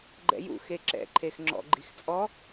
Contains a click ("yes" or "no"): yes